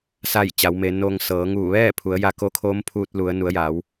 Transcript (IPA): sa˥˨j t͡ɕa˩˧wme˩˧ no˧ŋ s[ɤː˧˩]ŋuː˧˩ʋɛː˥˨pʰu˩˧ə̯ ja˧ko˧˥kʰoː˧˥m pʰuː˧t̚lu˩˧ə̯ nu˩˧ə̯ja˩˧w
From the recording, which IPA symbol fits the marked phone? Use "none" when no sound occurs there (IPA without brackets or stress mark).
ɤː˩˧